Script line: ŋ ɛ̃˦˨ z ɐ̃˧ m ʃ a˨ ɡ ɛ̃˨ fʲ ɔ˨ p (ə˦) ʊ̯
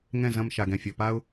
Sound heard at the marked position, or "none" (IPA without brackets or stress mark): a˦